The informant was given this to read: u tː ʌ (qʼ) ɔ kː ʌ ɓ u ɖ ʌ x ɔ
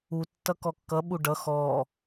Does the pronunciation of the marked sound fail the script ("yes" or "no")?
yes